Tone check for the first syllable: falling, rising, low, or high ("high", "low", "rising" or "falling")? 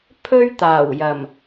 high